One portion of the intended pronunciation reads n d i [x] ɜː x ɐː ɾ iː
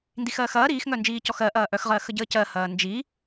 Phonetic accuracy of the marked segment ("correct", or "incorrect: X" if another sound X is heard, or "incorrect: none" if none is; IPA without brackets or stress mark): correct